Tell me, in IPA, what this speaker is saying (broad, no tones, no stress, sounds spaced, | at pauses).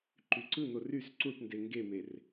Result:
ǃ y ǀ ɯ n̪ o r y s ǀ u ʈ n d e ŋ ɡ e m e r